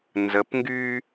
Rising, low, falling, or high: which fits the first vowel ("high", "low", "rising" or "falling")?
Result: rising